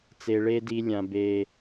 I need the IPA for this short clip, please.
t͡s e˨ ɭ e˦ d i˧ lʲ ã˨ b e˨

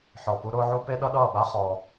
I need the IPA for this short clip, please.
ħ ɔ˨ p u˧ ɾ ʊː˦ ʕ u˦ p e˦ ɗ ʌ˦ ɗ ʌː˦˨ ɓ a˦ χ ɔ˧

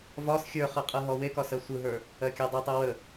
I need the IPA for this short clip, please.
v ɒ s xʲ ə˞ χ ɯ qʼ ɯ ɦ ɔ w e k ɒ s ɜ sʷ ɯ ɦ ə˞ | ɜ kʲ ə˞ dˤ ɯ tˤ ɯ w ə

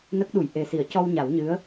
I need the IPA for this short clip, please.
n ə˦˥ k̚ ɗ u˨˩˨ j ʔ e˨˩ s i˨˩˨ ə̯ c ɔ˧ w ɲ a˨˩˦ w ɲ ɨ˧˥ ə̯

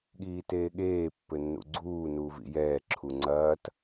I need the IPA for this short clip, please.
ɠ iː t eː ɠ eː pː ɘ nː ṵ ɡ͡ǀ uː n uː v ḭ j ɛː ǁʰ u ŋ͡ǀ ɐː t

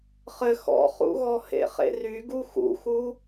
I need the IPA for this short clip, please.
χ ɘ x ɔ̰ χ ṵ ɣ ɔ h ḛ χ ḛ r y ɡ u x ṵ x u

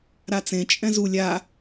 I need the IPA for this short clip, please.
ɾ a t͡s ẽ t͡ʃʼ ɛ̃ z u lʲ a

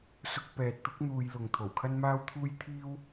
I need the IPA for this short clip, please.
s ʊ˧ k̚ p ɛː˨ t̚ t̪ ʊ˥ k̚ n̪ uː˧ j l ʊ˨ ŋ t̪ʰ o˨˩ w kʰ ɐ˥ n m aː˥ w t̪ʰ uː˥ j t̪ʰ iː˥ w

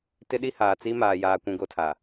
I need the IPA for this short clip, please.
t ɪ˦ ɗ i˦ h aː˨ t͡s i˦ m aː˨ j aː˨ kʷ ũ˨ ɡ o˦ tʰ a˨

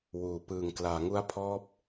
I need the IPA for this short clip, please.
w uː˩˦ p ɯː˨˩ ŋ k l aː˩˦ ŋ u˦˥ a̯ pʰ ɔː˦˥ p̚

